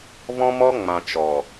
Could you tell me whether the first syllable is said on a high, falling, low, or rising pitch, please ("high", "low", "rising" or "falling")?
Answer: high